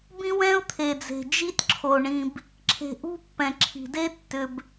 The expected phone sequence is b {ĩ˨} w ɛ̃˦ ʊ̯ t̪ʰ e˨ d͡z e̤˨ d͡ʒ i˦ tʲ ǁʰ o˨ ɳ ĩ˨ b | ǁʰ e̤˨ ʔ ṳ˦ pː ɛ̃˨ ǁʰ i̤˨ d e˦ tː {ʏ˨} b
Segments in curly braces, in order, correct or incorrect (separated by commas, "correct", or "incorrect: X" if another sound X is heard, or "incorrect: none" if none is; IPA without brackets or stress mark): incorrect: ĩ˦, correct